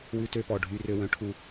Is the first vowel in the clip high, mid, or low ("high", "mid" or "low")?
high